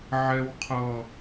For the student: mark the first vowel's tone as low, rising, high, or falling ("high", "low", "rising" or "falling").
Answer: high